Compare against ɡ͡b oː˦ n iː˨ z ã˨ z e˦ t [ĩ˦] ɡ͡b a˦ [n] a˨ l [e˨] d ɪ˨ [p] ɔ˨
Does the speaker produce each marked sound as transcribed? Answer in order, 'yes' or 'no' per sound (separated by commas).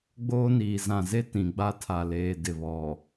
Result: no, no, no, no